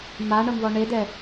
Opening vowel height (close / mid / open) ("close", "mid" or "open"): open